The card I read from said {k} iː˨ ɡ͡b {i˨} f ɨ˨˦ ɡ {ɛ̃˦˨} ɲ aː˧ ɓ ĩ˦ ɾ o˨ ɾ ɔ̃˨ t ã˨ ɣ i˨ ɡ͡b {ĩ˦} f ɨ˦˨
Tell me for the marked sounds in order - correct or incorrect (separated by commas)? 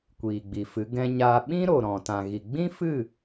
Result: incorrect, correct, incorrect, correct